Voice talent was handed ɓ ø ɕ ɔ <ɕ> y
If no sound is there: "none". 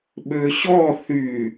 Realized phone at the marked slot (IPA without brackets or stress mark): θ